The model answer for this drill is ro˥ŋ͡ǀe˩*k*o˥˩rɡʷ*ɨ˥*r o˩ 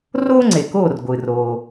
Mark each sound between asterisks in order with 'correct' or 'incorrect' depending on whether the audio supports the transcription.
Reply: correct, incorrect: ɨ˩

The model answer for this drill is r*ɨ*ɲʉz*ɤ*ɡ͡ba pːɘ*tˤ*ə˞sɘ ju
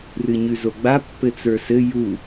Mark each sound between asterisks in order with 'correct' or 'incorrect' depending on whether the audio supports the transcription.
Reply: correct, incorrect: o, incorrect: t͡s

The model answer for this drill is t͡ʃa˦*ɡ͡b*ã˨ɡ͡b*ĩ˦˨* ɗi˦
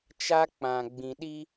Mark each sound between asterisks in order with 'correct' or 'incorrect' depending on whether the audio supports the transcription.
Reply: incorrect: k͡p, incorrect: ĩ˨

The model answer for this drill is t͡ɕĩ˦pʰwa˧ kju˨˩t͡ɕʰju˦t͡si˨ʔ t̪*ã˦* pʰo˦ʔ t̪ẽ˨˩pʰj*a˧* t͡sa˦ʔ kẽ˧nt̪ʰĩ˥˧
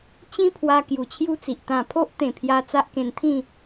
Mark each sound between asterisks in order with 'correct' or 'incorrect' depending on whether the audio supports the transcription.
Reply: incorrect: ã˨˩, correct

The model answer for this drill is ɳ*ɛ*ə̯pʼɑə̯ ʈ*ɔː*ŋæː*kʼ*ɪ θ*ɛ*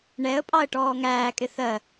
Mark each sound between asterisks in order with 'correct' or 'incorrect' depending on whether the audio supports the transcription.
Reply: correct, correct, correct, incorrect: ɜ

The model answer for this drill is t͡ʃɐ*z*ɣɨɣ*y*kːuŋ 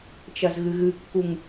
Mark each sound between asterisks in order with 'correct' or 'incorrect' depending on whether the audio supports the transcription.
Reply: correct, incorrect: ɨ

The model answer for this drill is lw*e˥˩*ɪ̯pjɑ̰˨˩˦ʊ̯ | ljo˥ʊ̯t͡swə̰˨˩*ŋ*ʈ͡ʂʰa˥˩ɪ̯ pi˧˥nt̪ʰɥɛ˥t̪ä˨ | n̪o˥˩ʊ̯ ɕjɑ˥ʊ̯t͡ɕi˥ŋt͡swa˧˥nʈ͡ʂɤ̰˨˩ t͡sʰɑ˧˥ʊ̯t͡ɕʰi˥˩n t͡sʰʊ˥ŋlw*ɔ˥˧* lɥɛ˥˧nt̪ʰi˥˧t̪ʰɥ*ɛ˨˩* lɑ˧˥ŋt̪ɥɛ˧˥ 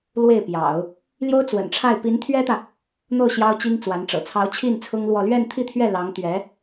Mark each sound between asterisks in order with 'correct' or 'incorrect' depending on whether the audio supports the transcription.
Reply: correct, incorrect: n, correct, incorrect: ɛ˥˩

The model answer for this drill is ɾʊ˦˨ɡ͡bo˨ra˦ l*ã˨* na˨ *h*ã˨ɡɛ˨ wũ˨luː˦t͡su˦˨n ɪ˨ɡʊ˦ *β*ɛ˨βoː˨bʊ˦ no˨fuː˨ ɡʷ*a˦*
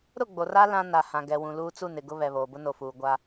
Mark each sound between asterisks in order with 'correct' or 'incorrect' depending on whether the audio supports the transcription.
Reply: incorrect: ã˦, correct, correct, correct

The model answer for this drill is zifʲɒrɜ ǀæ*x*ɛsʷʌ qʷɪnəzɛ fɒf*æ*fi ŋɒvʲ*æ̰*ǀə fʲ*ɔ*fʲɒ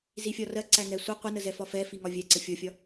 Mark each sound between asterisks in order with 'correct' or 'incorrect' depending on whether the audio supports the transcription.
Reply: incorrect: ŋ, incorrect: ɛ, incorrect: æ, correct

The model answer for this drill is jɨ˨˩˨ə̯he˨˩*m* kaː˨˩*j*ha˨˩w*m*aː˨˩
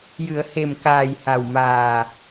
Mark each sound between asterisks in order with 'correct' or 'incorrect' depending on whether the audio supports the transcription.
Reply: correct, correct, correct

